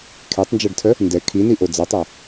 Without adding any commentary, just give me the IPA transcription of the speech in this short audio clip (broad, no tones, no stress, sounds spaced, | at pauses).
kʰ e tˤ n d͡ʒ a ɖ tʰ œ | n d ɛ kʰ i n i ʔ o d͡z a tˤ a